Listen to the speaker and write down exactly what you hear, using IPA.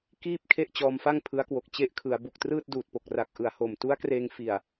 k iː˥˩ p̚ kʰ e˥˩ ʔ t͡ɕ ɔː˧ m f a˥˩ ŋ pʰ ɯ˦˥ a̯ k w o˨˩ k̚ t͡ɕ e˦˥ ʔ kʰ ɯ˩˦ a̯ b u˨˩ k̚ t r ɯː˥˩ t̚ d uː˨˩ t̚ p o˨˩ k̚ r a˨˩ k̚ ʔ ɯ˨˩ a̯ h o˨˩ m t u˦˥ a̯ k r eː˧ ŋ f i˨˩ a̯

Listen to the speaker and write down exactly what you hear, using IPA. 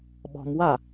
ɓ ɔ̤ m w a

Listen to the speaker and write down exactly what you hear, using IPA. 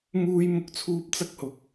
m uː˥ j m ʊ˥ k̚ t͡sʰ uː˥ p̚ t͡s ɐ˥ k̚ h ʊ˧ k̚

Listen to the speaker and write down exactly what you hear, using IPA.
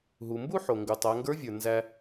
ɦ u˩ m b u˥ ħ o˩ ŋ ɡ u˩ tˤ æ˩˧ ŋ ɡ ə˞˧˥ vʲ ə˞˩ n z æ˧

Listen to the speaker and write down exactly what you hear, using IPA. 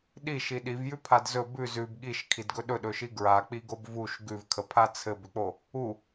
ɗ i ʃ i ɗ i v j ʉ pʰ a d z ɵ b ʉ z ʉ b ɠ i ʃ kʰ i d ɡ ɵ ɗ ɵ ɗ ɵ ʃ i ɡ ɹ a k͡p i ɡ o b v u ʃ ɡ ʉ v kʰ ə pʰ a t͡sʰ ɘ b ʏ k͡p o | u

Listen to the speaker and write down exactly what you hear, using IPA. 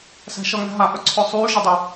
s æ̤ ʃ ʌ ŋ æ̤ ɦ a ʔ œ ǀʰ œ sˤ yː ʒ ə dˤ ə

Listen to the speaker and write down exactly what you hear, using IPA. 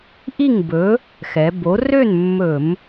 ʔ i˥˨ ŋ b ɵ˨˥ | x ɛ˩˧ b o˨˥ r ø˥˨ n mː ɵ˧˩˧ m

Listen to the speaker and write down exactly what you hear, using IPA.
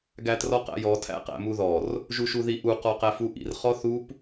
ɡ æ t r ɔ q æ̰ j ɔ tʰ æ̰ q æ̰ m u ð ɔ r | ʒ u ʃ u ð i ʔ u q ɔ q æ f u ʔ ḭ r χ ɔ θ u p

